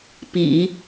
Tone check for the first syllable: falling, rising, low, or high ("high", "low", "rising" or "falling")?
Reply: low